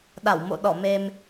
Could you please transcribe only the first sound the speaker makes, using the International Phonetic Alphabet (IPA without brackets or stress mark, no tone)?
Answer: ɗ